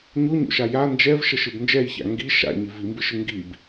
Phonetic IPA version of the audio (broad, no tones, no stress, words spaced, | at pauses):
ɲoɲo̰ʃa ja nd͡ʒɛvʃəʃɨb nd͡ʒɛjça̰ ŋɡi ʃa̰ɲi vimbɨʃɨ ŋɡib